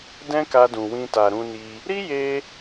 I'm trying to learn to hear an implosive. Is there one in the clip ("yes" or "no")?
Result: no